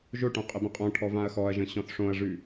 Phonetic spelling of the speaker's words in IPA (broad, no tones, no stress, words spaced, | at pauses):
ʒoʈõ qʼɘbə̃qʼɔ̃ʈʰɔ vãɐ̯xɔɐ̯ʒə̃ ɕɔ̃θʂõɐ̯ʐʉ